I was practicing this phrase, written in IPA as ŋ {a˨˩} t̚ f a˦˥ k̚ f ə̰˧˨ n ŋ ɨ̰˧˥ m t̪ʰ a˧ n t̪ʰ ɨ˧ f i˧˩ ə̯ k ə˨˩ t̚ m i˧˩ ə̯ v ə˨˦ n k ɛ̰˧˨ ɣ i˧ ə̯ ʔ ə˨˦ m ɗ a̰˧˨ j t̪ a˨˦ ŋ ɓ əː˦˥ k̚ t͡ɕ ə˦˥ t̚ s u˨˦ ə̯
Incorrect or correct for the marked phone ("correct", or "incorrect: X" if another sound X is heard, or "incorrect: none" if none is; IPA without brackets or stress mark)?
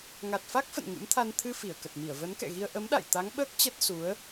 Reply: correct